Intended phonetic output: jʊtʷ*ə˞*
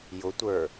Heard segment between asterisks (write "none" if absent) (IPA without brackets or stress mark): ə˞